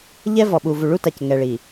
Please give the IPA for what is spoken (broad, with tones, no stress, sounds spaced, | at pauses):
ʎ ɛ˦ v ɔ˨ ɓ u˨ v u˨ ɭ u˦ t a˨ c ŋ ɛ˨ ɭ i˨